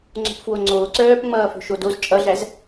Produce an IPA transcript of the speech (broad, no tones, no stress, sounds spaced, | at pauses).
ŋ͡ǀ o̤ p f w o ŋ͡ǀ oː ǀ œː p ŋ͡m ʌː f o̤ ʃ o d o z t͡ʃʼ ʌ ɮ æ z